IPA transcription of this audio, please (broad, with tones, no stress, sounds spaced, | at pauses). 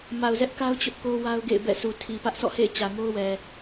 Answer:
m a˨ ʊ̯ z ɛ˦ ʔ k a˦ ʊ̯ t͡ɕ ʊ˦ ʔ k o˦ w a˦ ʊ̯ ɡ ḛ˦˨ ɪ̯ b ɛ̰˦˨ sʰ u˨ tʰ i˨ p ä˦ ʔ s ɔ̰˦˨ h ḛ˦˨ ɪ̯ t͡ɕ ä˨ ŋ o˦ ʊ̯ w ɛ˨